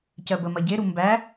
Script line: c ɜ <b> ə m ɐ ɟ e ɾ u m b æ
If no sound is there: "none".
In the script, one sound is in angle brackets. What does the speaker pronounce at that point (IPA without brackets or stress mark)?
b